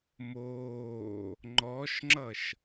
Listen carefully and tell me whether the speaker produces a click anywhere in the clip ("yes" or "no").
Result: yes